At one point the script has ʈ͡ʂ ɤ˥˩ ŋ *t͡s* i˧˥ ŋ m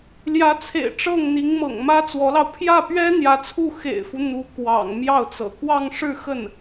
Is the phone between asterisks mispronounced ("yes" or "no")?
yes